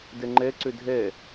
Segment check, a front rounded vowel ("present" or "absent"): present